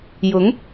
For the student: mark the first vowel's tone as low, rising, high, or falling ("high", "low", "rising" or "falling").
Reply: rising